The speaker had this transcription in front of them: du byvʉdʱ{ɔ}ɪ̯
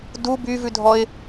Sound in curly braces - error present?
no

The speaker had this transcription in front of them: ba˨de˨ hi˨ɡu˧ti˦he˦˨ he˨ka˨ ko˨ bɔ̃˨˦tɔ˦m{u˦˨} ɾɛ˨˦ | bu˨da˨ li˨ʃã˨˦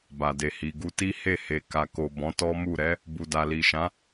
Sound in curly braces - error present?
no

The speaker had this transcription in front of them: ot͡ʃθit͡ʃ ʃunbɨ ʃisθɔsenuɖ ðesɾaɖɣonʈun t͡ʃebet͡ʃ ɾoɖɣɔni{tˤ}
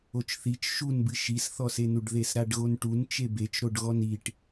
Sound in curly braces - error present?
yes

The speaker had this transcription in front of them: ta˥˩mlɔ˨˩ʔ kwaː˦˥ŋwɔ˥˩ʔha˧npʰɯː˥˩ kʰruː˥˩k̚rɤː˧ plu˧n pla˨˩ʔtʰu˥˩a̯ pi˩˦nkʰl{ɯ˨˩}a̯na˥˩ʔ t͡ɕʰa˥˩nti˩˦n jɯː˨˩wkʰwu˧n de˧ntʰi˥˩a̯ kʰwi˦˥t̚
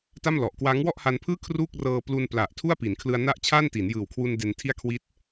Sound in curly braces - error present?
yes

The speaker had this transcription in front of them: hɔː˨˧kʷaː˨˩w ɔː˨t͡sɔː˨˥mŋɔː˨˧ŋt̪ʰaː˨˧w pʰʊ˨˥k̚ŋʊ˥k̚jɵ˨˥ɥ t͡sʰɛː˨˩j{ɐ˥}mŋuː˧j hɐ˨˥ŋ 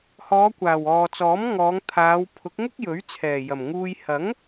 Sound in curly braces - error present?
yes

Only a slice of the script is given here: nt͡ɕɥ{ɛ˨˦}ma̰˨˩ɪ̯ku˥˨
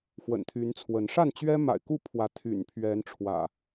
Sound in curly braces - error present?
yes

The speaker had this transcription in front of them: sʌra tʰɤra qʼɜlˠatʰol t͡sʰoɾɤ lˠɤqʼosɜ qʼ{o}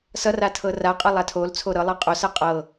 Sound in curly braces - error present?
yes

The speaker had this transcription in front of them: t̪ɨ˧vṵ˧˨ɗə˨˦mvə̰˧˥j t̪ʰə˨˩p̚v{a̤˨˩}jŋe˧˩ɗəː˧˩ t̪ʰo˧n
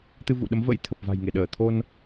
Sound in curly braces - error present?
no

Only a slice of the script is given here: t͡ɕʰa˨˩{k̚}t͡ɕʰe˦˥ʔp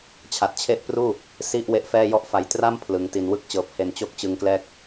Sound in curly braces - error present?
yes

